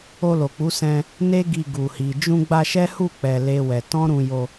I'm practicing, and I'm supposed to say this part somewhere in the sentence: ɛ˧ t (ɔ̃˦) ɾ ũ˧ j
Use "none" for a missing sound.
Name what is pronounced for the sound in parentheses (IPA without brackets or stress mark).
ɔ̃˦